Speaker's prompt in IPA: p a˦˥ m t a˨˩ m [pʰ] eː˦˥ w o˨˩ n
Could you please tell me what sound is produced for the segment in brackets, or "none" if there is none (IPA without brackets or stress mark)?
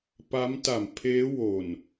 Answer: pʰ